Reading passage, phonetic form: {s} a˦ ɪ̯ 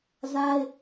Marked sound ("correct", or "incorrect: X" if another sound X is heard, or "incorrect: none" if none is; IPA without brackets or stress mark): incorrect: z